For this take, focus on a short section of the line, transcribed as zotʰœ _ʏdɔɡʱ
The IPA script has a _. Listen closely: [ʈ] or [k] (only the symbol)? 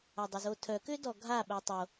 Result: k